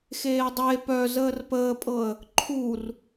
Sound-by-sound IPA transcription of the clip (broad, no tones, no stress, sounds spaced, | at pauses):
x eː dˤ e p œ z əː r p əː pʼ ɤ ə̯ | ǃʰ u r